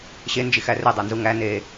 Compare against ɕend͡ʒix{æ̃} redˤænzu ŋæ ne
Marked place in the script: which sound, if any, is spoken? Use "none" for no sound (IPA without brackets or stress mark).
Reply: æ